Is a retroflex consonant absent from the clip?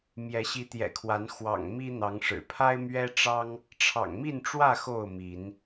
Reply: no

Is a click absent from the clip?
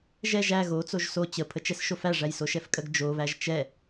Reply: yes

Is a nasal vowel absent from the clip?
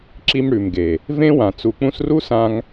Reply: no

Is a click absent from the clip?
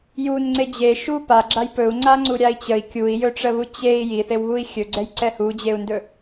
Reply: no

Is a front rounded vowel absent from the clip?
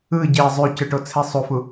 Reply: no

